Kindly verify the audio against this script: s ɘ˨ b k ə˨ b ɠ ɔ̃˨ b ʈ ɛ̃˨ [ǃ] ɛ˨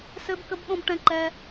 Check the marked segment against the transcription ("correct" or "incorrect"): correct